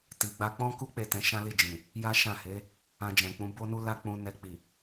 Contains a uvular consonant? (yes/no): no